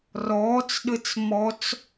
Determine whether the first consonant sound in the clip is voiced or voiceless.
voiced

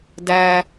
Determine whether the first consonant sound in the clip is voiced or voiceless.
voiced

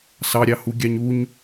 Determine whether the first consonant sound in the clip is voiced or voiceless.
voiceless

